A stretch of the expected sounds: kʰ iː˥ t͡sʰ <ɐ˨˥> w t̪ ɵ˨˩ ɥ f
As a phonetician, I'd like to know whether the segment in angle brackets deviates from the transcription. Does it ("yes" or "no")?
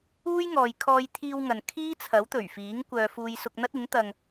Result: no